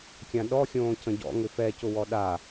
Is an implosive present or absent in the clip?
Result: present